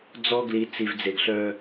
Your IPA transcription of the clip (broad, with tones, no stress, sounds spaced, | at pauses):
d͡z ɔ˦ ɡ l i˨˦ t͡s i˨ v d͡z e˨ ɡ ɬ œ˦